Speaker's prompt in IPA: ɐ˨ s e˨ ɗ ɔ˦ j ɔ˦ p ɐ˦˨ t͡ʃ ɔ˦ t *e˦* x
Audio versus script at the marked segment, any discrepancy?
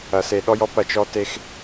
no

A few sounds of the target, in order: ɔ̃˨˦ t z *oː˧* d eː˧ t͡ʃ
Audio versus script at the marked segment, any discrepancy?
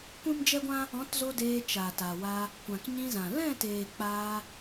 yes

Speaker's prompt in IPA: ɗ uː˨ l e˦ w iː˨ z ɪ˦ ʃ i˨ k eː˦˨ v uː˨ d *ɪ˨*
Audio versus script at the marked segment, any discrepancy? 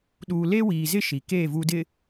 no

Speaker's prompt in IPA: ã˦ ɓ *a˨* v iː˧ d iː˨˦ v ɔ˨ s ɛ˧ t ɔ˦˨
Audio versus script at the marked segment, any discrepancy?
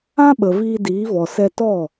yes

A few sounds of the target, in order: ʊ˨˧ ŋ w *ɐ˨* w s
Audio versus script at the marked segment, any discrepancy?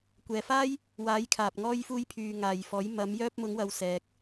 yes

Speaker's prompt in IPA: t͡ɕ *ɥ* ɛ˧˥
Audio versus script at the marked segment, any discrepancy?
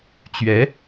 no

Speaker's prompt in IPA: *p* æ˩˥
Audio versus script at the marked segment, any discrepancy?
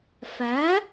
yes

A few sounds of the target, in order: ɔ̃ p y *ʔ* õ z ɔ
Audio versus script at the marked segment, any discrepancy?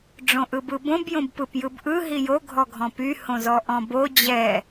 yes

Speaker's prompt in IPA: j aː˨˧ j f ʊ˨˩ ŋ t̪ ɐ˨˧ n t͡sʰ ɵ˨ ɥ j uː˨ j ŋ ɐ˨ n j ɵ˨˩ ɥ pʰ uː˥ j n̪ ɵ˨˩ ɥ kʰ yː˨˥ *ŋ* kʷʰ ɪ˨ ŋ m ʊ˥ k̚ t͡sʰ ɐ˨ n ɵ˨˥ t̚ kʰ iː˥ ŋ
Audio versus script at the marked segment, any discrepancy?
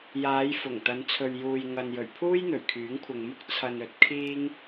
no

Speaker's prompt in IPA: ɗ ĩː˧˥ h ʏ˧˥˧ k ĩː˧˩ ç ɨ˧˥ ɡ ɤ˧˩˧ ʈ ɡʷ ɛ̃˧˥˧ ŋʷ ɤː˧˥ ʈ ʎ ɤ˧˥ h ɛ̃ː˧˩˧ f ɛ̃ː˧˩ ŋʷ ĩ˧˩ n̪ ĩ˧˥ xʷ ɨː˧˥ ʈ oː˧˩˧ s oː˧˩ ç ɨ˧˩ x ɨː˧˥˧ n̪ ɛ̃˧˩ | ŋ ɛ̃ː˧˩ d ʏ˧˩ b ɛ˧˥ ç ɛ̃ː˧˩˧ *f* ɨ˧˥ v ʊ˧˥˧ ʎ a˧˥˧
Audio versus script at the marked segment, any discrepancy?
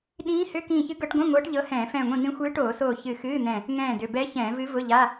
yes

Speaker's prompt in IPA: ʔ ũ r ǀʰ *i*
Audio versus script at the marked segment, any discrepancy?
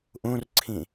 yes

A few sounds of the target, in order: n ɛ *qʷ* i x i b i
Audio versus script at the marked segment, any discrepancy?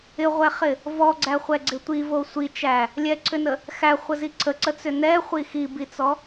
yes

